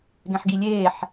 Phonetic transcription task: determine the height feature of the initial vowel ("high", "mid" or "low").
mid